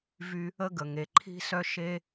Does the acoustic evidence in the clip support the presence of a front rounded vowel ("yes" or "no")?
yes